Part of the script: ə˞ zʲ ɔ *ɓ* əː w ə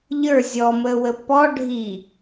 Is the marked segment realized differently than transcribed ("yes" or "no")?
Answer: yes